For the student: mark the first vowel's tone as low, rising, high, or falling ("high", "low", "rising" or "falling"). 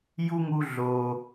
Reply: high